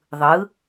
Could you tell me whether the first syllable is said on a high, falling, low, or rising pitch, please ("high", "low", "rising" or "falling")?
rising